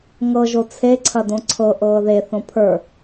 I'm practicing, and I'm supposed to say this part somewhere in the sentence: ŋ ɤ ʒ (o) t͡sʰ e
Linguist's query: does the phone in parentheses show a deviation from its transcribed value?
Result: no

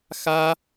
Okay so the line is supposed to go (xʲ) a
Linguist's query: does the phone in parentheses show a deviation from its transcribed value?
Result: yes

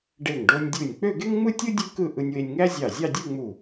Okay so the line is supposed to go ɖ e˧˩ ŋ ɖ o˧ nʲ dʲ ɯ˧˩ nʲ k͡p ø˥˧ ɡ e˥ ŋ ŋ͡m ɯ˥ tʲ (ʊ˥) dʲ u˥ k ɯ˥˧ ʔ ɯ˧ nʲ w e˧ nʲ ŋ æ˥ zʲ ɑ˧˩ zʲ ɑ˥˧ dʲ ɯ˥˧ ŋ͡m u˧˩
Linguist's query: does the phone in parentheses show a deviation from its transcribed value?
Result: yes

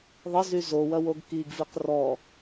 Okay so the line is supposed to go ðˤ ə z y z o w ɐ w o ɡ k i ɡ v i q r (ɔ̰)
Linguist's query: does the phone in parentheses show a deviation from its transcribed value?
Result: yes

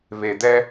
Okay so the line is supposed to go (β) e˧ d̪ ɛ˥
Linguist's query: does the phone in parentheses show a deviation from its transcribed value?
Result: no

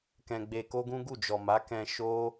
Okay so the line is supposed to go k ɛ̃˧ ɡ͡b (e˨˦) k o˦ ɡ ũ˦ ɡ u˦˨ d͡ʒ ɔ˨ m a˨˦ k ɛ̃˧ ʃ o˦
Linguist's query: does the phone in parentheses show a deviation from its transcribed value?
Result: yes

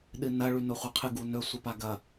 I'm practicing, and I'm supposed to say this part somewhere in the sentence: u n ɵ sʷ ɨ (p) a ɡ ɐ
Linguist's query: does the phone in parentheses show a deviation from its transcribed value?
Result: no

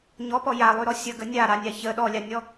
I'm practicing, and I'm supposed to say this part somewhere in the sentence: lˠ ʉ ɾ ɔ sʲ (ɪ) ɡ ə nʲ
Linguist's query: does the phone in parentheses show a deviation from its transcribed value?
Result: yes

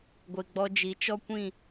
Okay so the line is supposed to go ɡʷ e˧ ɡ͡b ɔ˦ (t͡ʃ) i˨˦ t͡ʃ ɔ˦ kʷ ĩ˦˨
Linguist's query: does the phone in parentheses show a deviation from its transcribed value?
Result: yes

